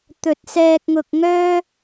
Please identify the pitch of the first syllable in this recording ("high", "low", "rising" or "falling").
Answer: low